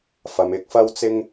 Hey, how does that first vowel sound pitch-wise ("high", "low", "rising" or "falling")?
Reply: low